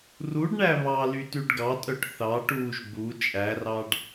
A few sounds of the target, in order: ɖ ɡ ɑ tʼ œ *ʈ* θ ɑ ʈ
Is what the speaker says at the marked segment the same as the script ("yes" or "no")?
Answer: yes